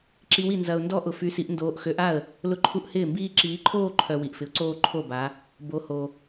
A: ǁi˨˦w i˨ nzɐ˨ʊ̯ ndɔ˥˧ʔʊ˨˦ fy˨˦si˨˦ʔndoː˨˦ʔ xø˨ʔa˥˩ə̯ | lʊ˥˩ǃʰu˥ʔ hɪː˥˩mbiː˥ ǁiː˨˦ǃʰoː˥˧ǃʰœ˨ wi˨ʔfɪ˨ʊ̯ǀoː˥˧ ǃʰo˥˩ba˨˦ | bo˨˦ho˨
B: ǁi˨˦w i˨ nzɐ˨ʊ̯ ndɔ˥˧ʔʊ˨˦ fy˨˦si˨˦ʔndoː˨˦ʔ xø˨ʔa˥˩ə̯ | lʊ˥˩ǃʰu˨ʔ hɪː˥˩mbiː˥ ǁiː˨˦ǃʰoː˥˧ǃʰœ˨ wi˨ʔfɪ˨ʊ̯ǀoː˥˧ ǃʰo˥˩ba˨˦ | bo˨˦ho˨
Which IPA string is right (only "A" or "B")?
A